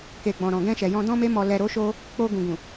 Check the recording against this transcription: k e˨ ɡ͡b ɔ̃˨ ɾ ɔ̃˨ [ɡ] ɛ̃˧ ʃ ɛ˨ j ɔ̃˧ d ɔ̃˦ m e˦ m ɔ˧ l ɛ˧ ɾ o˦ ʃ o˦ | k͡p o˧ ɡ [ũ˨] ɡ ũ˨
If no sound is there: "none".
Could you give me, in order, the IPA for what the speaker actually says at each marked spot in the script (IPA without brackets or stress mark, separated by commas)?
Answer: ɡ, ũ˨